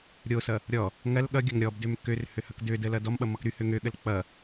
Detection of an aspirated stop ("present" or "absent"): absent